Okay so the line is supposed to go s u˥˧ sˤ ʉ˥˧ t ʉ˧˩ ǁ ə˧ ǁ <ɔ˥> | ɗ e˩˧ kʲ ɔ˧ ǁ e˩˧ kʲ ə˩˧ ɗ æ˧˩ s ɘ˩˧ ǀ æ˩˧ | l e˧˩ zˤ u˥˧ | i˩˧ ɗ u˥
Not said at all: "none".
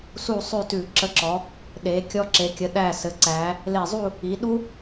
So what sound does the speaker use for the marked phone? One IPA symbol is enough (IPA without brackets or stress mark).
ɔ˩˧